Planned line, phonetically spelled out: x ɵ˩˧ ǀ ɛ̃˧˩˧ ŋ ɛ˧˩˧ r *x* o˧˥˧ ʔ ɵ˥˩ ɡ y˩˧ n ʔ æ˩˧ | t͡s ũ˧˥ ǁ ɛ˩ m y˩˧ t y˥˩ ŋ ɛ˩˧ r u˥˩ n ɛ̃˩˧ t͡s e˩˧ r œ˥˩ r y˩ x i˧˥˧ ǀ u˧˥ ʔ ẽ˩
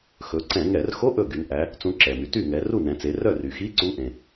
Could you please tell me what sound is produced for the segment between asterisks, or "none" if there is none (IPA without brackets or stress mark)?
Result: x